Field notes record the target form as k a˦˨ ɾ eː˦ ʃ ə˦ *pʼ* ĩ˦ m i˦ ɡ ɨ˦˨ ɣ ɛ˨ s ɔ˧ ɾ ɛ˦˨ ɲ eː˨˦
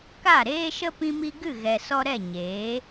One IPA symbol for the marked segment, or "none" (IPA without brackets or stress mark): p